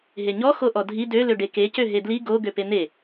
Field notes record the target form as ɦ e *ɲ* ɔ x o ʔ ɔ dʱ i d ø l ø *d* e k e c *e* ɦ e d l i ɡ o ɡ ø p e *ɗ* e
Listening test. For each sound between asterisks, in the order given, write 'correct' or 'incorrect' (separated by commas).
correct, incorrect, incorrect, incorrect